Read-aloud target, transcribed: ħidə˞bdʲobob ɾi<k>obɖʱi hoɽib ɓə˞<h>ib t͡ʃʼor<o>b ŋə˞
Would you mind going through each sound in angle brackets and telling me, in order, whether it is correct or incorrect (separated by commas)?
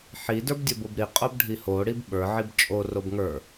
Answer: incorrect, incorrect, correct